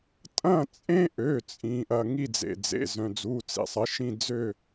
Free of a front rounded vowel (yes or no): no